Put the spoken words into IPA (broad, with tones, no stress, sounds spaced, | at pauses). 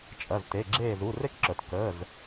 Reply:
t͡ʃʼ ɐ˩˧˩ z t e˩˧˩ ɡ͡ǁ eː˧˩ z u˩˧˩ r e˦˥ k ǁ œ˩ t k əː˩˧˩ z